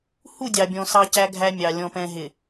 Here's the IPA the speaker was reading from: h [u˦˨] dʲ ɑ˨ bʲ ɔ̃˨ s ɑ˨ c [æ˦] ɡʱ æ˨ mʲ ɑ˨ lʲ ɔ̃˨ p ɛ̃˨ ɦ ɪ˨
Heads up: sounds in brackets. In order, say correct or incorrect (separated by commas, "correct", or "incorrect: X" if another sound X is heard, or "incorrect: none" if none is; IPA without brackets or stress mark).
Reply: correct, incorrect: æ˨